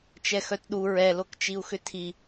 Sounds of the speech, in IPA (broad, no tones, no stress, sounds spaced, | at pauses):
t͡ʃ ɛ x œ t ɗ u ɹ ɛ l o k t͡ʃ i u̯ x ʏ tʰ i